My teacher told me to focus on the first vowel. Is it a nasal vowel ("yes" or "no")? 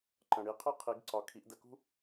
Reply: yes